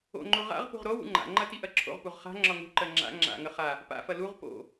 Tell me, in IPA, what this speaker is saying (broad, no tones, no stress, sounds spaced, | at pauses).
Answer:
o̰ ŋ͡ǃ o ʁ a̰ ʁ p ṳ ʁ ɾ o w ṵ ŋ͡ǃ a̰ ŋ͡ǃ ɐ t i ʔ ɐ ǁʰ o̰ ʁ p u ʁ χ a̤ ŋ͡ǁ ɒ ŋ ṳ ǃ ɜ ŋ͡ǁ a̰ ŋ͡ǁ a̰ ŋ ə χ a | p a̰ f ɐ l u ʁ p o̰